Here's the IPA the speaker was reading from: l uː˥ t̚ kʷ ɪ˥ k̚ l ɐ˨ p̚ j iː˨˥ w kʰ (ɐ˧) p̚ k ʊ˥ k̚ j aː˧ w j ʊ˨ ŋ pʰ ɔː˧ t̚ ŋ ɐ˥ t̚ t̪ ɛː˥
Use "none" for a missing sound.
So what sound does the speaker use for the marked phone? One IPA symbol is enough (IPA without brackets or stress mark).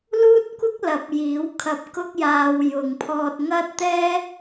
ɐ˧